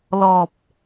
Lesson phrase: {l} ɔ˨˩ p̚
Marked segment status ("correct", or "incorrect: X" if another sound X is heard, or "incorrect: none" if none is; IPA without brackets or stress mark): correct